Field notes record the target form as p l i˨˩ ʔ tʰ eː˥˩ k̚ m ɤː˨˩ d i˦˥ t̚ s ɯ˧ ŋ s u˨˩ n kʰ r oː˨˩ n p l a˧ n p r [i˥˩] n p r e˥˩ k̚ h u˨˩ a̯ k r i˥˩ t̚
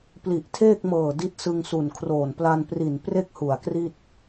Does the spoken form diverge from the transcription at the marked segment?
yes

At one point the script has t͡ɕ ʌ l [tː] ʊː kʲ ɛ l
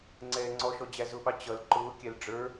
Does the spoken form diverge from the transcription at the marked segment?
yes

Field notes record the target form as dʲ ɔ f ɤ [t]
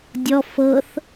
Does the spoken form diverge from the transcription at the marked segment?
yes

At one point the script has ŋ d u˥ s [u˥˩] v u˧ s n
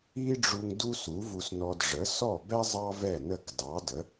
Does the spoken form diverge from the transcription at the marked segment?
yes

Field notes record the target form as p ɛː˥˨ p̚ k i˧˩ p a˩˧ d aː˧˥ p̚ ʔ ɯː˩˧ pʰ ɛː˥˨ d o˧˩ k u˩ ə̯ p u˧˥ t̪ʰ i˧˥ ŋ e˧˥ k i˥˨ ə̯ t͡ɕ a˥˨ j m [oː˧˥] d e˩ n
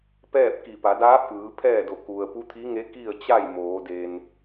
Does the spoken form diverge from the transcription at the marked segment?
yes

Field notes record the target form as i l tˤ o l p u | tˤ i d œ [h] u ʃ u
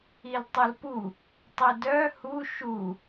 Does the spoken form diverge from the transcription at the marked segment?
no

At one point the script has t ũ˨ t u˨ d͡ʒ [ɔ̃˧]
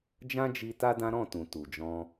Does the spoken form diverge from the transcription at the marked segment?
no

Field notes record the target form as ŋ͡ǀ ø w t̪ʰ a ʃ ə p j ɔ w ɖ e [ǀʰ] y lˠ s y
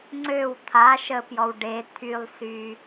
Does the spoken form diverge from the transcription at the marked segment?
yes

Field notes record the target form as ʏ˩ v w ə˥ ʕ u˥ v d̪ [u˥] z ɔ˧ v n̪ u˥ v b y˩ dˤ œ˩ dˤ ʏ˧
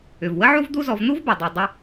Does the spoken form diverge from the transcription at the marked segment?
no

